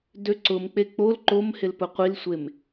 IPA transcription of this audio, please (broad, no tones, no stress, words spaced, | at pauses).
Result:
døǀʊmk͡pe k͡pol ǃomhɪl pʊqʷilsʷem